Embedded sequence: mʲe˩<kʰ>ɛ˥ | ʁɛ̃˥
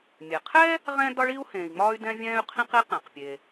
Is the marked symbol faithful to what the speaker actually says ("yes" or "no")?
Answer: no